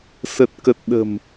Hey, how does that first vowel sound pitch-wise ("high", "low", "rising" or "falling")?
low